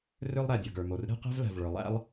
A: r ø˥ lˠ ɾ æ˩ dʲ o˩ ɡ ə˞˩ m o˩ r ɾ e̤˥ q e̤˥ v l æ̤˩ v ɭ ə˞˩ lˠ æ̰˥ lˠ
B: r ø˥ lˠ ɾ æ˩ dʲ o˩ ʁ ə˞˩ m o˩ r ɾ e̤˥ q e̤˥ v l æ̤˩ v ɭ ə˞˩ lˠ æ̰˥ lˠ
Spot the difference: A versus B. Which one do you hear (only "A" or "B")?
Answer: A